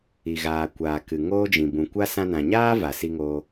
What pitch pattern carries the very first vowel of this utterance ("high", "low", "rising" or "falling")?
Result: low